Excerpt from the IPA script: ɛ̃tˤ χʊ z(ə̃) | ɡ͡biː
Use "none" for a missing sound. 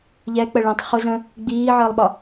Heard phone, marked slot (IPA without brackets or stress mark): ə̃